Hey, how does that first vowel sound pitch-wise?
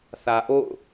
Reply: low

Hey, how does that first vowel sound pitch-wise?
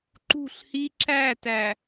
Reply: falling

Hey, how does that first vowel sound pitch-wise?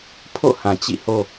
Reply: falling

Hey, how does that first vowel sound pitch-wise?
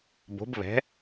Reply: rising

